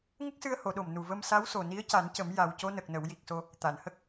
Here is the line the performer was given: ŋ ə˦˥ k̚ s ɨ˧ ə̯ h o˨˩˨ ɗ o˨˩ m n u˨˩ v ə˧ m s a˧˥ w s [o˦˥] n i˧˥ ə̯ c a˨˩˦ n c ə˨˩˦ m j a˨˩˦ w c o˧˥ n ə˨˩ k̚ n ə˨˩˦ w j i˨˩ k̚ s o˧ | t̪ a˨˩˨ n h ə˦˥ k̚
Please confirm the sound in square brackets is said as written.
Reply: no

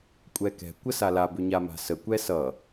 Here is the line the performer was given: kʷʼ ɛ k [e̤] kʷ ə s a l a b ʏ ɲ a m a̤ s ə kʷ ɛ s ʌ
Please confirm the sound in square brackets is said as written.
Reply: no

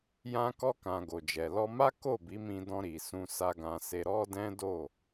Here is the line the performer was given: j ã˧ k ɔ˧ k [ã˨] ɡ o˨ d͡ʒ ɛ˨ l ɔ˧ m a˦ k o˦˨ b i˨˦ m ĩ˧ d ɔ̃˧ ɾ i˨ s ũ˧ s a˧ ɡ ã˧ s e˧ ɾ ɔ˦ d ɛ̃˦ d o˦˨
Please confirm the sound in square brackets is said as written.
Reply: yes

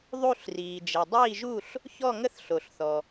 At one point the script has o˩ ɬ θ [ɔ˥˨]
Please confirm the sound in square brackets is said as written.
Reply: no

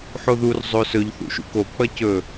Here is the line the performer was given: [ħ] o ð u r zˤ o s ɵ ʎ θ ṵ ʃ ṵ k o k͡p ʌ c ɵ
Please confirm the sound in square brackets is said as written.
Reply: yes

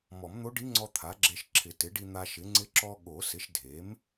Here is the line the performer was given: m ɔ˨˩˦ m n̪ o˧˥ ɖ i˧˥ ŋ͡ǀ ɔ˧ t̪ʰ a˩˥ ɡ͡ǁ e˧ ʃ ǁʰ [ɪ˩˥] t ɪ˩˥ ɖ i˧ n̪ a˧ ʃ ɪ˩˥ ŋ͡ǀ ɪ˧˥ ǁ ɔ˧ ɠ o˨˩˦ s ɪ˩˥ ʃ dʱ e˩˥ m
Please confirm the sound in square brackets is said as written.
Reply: no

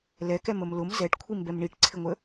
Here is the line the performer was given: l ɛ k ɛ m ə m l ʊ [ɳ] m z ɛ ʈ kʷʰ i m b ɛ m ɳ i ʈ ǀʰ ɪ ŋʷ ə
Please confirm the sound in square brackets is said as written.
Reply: no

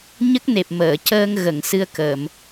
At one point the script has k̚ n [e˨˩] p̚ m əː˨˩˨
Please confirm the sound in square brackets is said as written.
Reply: yes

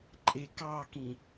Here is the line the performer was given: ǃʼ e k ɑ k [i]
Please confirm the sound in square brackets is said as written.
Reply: no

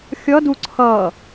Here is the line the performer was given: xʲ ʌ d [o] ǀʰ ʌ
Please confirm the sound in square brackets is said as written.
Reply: no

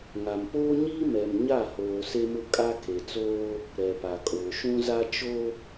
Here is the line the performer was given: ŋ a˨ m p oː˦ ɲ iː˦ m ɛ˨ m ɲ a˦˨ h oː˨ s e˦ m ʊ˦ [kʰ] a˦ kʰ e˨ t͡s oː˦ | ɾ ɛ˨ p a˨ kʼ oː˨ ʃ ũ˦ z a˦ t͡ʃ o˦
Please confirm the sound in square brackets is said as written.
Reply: no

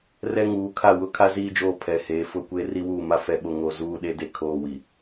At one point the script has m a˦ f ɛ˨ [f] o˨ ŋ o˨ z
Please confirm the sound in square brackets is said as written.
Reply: no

